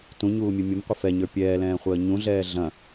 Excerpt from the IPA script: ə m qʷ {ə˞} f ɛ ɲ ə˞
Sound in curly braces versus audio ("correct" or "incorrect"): incorrect